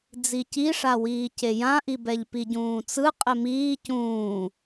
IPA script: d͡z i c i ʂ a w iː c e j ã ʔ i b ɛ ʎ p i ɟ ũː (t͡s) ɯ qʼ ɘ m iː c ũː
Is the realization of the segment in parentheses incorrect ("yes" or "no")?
no